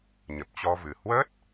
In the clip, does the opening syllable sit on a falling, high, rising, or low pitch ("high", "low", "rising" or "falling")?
low